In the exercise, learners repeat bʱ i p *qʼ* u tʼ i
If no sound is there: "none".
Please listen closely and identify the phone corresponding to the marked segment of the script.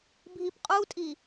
qʼ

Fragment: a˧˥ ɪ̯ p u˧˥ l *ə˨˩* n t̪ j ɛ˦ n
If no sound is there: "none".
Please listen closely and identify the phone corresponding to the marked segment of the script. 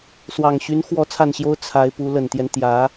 ə˨˩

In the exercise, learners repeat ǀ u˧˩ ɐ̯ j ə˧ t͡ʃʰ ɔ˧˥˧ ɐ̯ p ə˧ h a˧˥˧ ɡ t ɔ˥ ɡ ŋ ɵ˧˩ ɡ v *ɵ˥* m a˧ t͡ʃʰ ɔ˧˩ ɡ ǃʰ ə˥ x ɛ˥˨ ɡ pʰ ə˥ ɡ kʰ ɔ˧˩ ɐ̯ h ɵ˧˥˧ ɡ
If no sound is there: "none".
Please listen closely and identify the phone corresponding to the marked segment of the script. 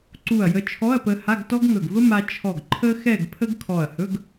ə˥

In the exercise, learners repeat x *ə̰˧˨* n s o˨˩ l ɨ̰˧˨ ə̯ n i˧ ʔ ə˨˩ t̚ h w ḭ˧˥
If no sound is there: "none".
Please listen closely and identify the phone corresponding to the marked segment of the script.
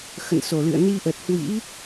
ə̰˧˨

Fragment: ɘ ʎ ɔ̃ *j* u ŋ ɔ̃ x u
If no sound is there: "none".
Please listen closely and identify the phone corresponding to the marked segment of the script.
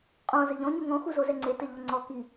ɲ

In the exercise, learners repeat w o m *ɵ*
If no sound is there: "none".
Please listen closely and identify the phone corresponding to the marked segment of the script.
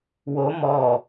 ɔ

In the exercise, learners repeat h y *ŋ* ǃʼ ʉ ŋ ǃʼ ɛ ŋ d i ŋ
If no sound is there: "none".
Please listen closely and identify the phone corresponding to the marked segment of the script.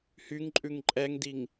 ŋ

